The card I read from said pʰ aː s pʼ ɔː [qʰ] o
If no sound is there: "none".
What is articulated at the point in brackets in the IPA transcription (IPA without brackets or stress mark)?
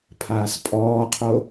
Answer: qʰ